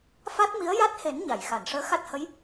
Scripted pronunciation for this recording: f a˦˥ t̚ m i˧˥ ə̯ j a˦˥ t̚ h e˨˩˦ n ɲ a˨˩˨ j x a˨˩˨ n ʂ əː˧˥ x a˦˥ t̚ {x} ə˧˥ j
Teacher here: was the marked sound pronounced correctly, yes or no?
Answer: no